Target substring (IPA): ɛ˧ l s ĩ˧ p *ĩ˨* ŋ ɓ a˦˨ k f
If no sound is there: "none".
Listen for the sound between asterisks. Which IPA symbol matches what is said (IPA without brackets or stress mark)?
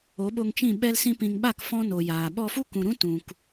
ĩ˨